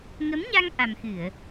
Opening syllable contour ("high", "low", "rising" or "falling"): rising